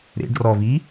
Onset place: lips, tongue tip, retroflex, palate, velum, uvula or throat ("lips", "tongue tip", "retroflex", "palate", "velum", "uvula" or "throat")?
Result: tongue tip